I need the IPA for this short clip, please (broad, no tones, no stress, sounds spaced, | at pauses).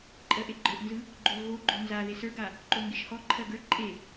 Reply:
ǃʼ ɜ ʔ e ɡ͡ǃ ə˞ ʔ n z ɯ | ɡ͡ǃ o l ɣ o ɡ͡ǃ o n z a ð e s ə˞ ɡ a | ǃ o ŋ ɡ e ʃ h ɔ ǃʰ ɜ ɡ ə˞ ǃʼ e